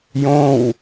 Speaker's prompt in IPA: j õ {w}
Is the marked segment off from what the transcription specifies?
no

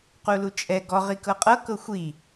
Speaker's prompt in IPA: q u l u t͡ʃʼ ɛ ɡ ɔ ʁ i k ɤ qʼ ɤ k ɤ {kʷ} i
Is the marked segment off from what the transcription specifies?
yes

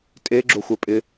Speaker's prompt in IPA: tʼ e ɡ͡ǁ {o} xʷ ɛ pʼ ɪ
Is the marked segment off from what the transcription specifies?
no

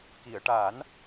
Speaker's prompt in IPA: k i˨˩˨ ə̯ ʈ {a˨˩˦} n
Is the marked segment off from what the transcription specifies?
no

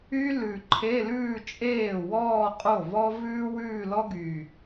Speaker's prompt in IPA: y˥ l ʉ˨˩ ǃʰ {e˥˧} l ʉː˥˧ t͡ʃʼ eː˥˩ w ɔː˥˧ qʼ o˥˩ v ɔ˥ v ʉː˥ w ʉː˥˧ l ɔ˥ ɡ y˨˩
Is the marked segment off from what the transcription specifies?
yes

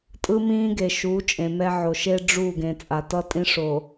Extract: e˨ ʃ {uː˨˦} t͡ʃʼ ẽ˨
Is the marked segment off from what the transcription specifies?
no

